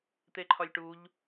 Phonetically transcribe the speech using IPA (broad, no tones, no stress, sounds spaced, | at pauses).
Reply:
t̪ e ǃʰ ɒ lʲ ʈ u ʎ